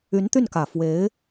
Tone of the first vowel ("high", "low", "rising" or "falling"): rising